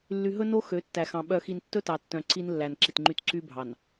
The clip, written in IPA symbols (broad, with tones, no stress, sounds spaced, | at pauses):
lː y˨ ɦ ɵ˦ n o˦ x ø˨˦ tː æ˨ x ɑ̃˨ ɓ œ˨ x i˨ n tː ɵ˦ t ɑ˨ tː œ̃˨ ǀ i˦ n lː æ˨ n ǁ i˨ t ŋ͡ǃ y˦ t ǀ y˦ bʱ ɑ˨ n